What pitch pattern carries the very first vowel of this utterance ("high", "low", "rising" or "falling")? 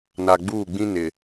low